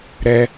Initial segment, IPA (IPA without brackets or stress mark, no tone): ɾ